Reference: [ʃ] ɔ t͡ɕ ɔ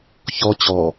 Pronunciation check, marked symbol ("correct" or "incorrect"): incorrect